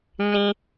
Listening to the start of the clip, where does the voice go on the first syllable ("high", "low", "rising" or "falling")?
high